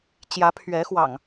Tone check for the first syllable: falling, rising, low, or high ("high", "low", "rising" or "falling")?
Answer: rising